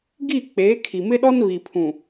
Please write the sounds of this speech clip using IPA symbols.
ɡ i˦˨ k͡p eː˨˦ kʰ i˨ m ɪ˦ ɗ ɔ˦ n β i˨ pʰ ũ˨

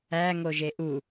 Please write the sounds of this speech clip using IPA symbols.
æ ŋ o ʒ e ʔ u

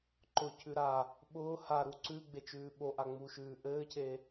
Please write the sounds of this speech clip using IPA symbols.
ǃ ʊ cʰ ʉ ɾ a | ɓ ʊː h a ɾ u ǀ ʉ ɡ͡b e t͡ʃ ʉː ɓ o ʔ a ŋ͡m u ʃ ʉː ʔ ɘː cʰ e

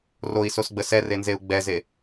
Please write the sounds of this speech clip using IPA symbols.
r o i̯ s o s ɡ͡b ə s ɛ r e n z e u̯ ɡ͡b ɛ z e

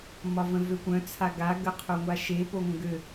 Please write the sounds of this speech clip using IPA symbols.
m ɒ v ə̃ v ø kʷ œ̃ t͡sʰ a ɡ a ɡ ə qʰ o ŋʷ a ʃ e p o ŋʷ ə̃ ɡ ø

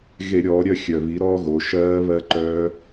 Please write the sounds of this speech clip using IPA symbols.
ɣ e˧˩˧ ɾʲ ɔː˩˧ ɾʲ œ˦˨ xʲ œ˨˩ β i˩˥ ɾ ɔ˦˥ ɣ o˩˧ ʃ ɜː˦˥ β ɜ˦˥ ǃ œː˦˥

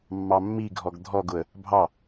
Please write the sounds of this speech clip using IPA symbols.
mː ɑ mː i ɡʱ ɔ ɡ dʱ ɔ ɡ ʊ ə̯ | bʱ ɑ

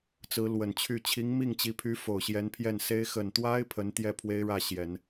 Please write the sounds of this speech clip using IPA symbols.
t͡s ɹ̩˧˥ l w ə˨˩ n t͡ɕʰ y˥˩ t͡ɕʰ i˧˥ ŋ m i˥˩ ŋ t͡ɕ i˧˥ pʰ y˧˥ f o˨˩ ʊ̯ ɕ j ɛ˧˥ n pʰ j ɛ˥˩ n s e˥ ɪ̯ x ə˨˩ n t̪ w a˥ ɪ̯ pʰ ə˧˥ n t̪ j ɛ˥˩ pʰ w e˥ ɪ̯ ɻ ä˥˩ ɕ j ɛ˨˩˦ n

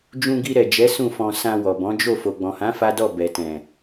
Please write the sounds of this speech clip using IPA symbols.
d͡ʒ ũ˧ ɡ i˧ ɾ ɛ˨ d͡ʒ ɛ˨˦ s ũ˦˨ f ɔ̃˧ s ã˧ w ɔ˨ b ɔ̃˨˦ d͡ʒ o˦˨ f o˨ ɡ͡b ɔ̃˨ h ã˨˦ f a˦ d ɔ˦˨ b ɛ˨ t ɛ̃˨

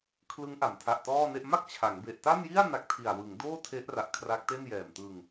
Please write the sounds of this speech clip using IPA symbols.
kʰ l ɯ˦˥ ŋ ʔ a˩˦ m tʰ a˨˩ ʔ t ɔː˥˩ n e˥˩ ʔ m a˥˩ k̚ t͡ɕʰ a˩˦ ŋ b e˨˩ ʔ t a˥˩ n j i˥˩ a̯ n a˦˥ k̚ tʰ i˨˩ a̯ w ɯ˩˦ ŋ d oː˥˩ tʰ e˦˥ ʔ r a˨˩ ʔ kʰ r a˦˥ k̚ t e˥˩ n j ɛː˨˩ m t ɯ˧ ŋ

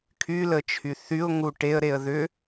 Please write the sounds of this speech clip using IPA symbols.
kʰ y l ə t͡ʃʰ y θ y ʊ̯ ŋ u ʈ e ə̯ ɾ e ə̯ ð ʏ

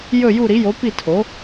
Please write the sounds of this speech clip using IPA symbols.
j ɵ˥˨ j u˥˨ ɾ i˩˥ j o˩˥ p i˥˨ tʰ o˩˥

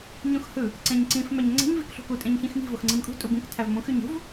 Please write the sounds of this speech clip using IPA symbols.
ɲ ũ x h ɯ | ǀ ẽ ɲ ǀ ĩ f m æ ɲ ŋ͡ǀ e̤ ɲ v i k ɬ ṳ k u tʼ ẽ ɲ ç ĩ x m i̤ v o x ŋ͡ǀ ĩ m kʼ ṳ tʼ u b ĩ k tʰ æ v m ũ x y ɲ ṳ v

